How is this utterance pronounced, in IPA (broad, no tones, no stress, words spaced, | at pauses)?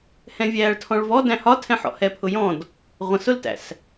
hɛ̃vʲæːɭtʰɔ̃ɭvɔ dæ̃hɒtʰɛ̃ ħɔ̰hɛpʰʊjɔ̃d | ʁʷə̃sʊltæ̰s